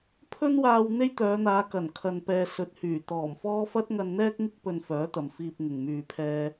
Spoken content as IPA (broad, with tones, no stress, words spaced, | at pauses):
pʰɵ˥nwaː˧w n̪e˥jt̪œː˨˧n̪aː˨˧kɐ˨˩n kʰɐ˧npɛː˧ sɵ˨˥t̚hyː˨˩ t̪ɔː˨˩mfɔː˥ fɐ˥t̚ŋɐ˧nn̪ɛː˥k̚ŋɪ˥k̚ pɵ˧nfœː˨˥t̪ɐ˨m fiː˧p̚ŋɪ˨ŋ myː˧pʰɛː˥